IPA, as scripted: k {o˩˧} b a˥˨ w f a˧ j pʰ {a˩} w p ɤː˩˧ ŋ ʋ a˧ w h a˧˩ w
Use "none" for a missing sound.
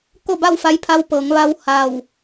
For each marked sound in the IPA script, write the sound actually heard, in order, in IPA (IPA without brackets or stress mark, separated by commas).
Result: o˥˨, a˧